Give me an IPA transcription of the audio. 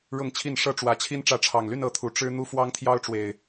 ɻ ʊ˥˨ ŋ t͡ɕʰ i˥˨ n ʂ ɤ˦ ʈ͡ʂ w ä˨˦ t͡ɕʰ i˦ n ʈ͡ʂ ä˨˦ ʈ͡ʂʰ ɑ˨˩ ŋ l y˥˨ n ɤ˨˦ t̪ʰ u˨˩ ʈ͡ʂ ɻ̩˦ n̪ u˦ f w ɑ˦ ŋ t̪ʰ j ɑ˦ ʊ̯ ʈ͡ʂ w e˨˩ ɪ̯

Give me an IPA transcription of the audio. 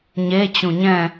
ɲ e t͡ɕ ũ ɲ ɛ̃

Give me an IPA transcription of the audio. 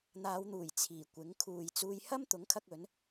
n̪ aː˨˧ w n̪ uː˨˩ j t͡sʰ iː˨˩ kʷ ɪ˨˥ ŋ kʰ uː˨ j t͡s uː˧ j h ɐ˥ m t̪ ʊ˨˥ ŋ kʰ ɐ˧ k̚ ɵ˨˥ n

